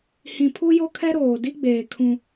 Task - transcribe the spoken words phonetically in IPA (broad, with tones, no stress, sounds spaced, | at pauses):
h ĩ˨ pʰ u˦ j o˦ kʰ ɛ˦ ɾ oː˨ d i˦ ɡ͡b eː˨ kʰ ũ˦